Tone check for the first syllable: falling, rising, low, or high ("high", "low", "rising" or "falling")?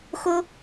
high